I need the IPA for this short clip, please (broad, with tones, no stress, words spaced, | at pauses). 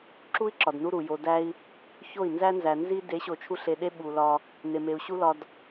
ǁu˦i̯ ǁɒ˨dnu˦ɾu˨ jo˨dæ˧i̯ | ço˦˨i̯nzæ˦nzæ˨ nzi˦ de˨˦ɕo˨ t͡ʃʰu˧ɬ e˧ɗe˦ ɓu˨lɒ˧ | ne˨me˨u̯ɕu˦lɒ˧d